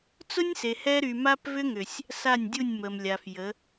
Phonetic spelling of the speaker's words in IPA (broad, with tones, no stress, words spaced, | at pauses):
t͡sʊ˦nʲse˨ hɛ˦ ɾy˨ma˦pvʏ˦ŋʏ˨sʲ | sa˦˨nʲdʲu˦˨nʲmə˨m lʲa˨fjə˨˦